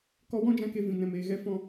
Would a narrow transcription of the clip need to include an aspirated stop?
no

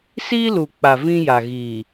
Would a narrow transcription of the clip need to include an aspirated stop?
no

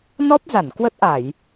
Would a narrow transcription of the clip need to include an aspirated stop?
no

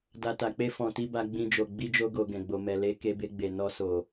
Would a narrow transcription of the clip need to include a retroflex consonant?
no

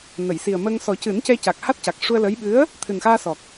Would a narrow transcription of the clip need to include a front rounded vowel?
no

